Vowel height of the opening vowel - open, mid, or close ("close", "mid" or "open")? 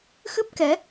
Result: close